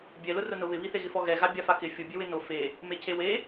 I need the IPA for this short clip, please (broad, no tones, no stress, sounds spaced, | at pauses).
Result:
bʲ ɛ l ʊ r ʊ n ʊ β ɪ β i θ e ɣ ɪ f ɔ ɣ ɛ ɣ a bʲ a f a k ɪ fʲ ʊ bʲ e w ɪ n o f e | m e cʰ e w e